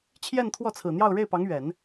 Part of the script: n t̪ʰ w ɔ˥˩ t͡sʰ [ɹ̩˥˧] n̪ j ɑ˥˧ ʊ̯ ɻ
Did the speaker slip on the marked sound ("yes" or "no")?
yes